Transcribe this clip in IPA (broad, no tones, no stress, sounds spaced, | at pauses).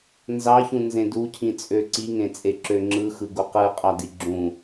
n z ɑ ç ũ n z ẽ d u cʰ ĩ t͡sʼ ø ǀ i ŋ ẽ t͡sʼ e ǁ ø ŋ͡ǁ ɯ x ɯ ɡ u q ɯ qʼ ɑ d i ɡ͡ǁ ũ